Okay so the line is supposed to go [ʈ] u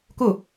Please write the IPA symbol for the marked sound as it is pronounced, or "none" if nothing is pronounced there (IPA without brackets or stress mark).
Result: k